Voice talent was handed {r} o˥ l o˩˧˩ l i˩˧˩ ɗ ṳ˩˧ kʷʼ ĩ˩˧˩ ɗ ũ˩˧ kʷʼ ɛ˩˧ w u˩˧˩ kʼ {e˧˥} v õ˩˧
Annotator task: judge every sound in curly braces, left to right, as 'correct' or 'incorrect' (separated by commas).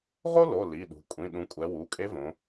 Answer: incorrect, correct